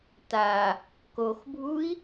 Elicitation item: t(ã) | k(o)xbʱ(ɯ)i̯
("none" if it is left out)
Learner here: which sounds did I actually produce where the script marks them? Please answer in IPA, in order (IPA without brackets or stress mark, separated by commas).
a, o, u